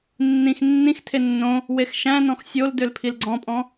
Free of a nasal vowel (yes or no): no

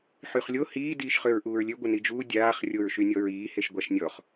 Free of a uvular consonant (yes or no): no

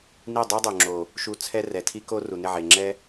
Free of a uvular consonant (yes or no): yes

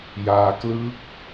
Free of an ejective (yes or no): yes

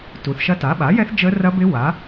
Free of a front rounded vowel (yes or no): yes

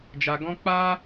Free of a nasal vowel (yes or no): no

